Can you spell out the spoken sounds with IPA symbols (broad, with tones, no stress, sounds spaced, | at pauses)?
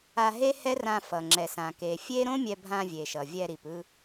a˧ ɦ e˥ h ɛ˥ r ã˧ f ʌ˩ ŋ͡ǁ ɛ˩ s ã˩ k e˩ fʲ e˥ ɾ õ˥ mʲ ɛ˧ bʱ ã˧ vʲ e˩ ʃ ʌ˩ vʲ ɛ˧ ɾ i˩ p ɯ˧